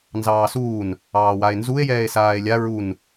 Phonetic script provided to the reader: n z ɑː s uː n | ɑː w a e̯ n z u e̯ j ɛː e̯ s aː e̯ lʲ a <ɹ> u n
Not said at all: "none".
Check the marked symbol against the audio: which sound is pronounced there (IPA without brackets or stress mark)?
ɹ